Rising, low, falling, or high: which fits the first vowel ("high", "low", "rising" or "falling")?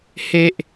high